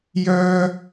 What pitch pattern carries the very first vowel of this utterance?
high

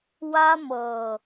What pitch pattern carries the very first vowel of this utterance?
high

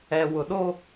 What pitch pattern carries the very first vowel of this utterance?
low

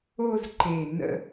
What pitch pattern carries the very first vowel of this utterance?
falling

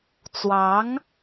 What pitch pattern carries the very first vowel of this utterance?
rising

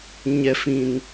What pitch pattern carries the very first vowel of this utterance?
low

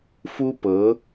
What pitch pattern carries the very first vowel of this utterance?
high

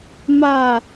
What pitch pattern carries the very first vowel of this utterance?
falling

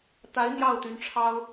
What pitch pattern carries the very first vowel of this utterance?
rising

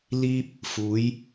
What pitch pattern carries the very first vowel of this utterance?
high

